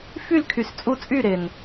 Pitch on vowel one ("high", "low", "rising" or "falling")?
falling